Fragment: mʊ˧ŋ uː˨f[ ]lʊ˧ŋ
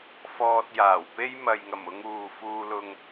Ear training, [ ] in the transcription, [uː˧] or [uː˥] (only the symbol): uː˧